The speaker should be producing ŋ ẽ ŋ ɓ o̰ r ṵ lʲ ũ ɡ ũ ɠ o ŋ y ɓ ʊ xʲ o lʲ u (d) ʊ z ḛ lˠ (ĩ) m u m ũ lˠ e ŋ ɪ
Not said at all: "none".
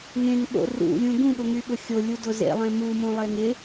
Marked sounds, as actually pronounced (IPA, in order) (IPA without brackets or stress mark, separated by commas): d, ẽ